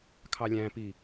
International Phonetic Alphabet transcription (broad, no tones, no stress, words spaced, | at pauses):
kʰɑlʲæ̃pi